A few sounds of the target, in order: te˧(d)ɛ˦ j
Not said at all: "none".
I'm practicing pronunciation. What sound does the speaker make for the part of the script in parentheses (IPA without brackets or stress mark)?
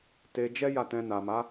d͡ʒ